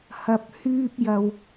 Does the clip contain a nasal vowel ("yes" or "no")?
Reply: no